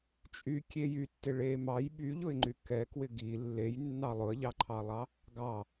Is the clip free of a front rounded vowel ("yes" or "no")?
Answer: no